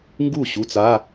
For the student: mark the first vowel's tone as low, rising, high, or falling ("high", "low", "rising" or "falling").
falling